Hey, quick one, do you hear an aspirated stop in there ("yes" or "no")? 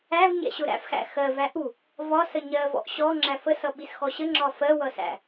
no